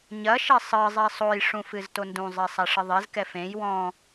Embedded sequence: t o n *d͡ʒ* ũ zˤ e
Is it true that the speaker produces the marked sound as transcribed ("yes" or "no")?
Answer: no